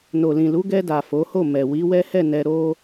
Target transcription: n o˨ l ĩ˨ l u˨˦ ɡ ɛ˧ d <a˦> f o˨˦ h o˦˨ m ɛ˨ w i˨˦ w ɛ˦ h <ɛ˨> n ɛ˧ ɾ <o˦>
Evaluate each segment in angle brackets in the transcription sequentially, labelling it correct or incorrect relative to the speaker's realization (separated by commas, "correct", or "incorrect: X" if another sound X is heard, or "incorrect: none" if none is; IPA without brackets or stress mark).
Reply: incorrect: a˨, incorrect: ɛ˦˨, correct